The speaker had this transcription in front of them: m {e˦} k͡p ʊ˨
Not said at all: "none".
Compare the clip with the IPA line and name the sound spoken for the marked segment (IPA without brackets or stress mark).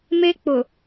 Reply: e˦